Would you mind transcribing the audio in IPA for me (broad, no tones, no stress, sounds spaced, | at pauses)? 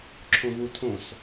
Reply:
ǁʰ õ v u tʰ õ s